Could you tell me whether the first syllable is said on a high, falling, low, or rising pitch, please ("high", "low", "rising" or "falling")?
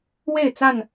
falling